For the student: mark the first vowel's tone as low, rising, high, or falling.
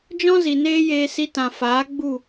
high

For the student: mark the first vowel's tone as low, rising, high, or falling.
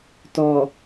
low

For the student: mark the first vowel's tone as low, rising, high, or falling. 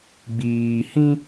low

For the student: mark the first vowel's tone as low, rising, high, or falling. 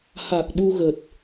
low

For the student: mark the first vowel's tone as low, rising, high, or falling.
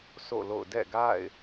falling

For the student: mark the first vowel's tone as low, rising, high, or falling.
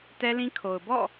high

